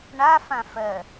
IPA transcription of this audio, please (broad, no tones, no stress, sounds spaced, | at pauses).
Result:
ɳ a f ã f ɜ